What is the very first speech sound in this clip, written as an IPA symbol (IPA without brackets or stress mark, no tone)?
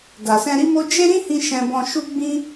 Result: d